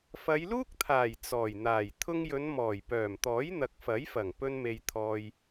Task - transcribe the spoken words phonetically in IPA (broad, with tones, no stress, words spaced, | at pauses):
fɐ˨˧jluː˥k̚t̪ʰaː˨˩j t͡sɔː˨˩jn̪aː˨˩j t̪ʰʊ˥ŋ jɵ˨˧nmɔː˨˩jpœː˨˩mt̪ɔː˨˥j n̪ɐ˨k̚fɐ˨˥jfɐ˨˩ŋ pɵ˥nme˧jt̪ʰɔː˧j